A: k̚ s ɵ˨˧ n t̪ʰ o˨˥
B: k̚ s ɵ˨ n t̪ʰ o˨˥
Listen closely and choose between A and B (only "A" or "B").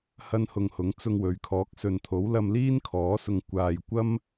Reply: B